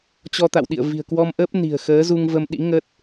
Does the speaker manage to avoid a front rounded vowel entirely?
yes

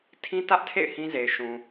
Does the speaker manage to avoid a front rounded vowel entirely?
yes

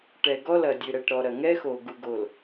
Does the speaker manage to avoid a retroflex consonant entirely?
no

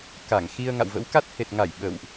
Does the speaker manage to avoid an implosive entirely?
no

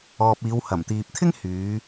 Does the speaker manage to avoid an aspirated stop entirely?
no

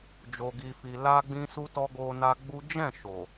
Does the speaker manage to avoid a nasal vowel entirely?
no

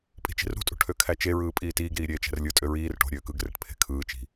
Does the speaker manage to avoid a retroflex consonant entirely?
no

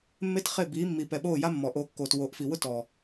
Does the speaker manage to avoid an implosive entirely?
no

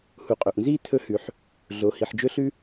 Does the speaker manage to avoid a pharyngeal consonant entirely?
no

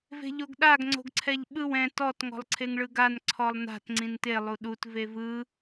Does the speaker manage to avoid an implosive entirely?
no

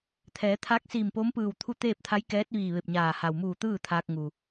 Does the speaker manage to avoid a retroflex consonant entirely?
yes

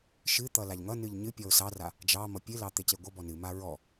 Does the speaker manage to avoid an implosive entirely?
yes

